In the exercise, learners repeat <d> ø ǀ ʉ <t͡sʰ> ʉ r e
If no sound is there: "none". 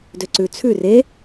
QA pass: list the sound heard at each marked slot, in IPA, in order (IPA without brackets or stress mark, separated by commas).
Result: d, t͡sʰ